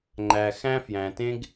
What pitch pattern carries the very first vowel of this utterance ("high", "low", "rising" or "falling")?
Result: low